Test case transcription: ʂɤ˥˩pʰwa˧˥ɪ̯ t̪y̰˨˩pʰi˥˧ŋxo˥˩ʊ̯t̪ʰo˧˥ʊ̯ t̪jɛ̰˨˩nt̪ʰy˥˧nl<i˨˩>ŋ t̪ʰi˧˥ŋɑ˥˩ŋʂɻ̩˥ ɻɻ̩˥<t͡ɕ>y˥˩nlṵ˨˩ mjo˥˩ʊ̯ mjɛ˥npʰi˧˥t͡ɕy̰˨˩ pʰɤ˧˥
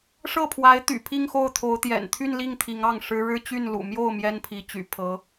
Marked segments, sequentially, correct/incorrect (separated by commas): incorrect, correct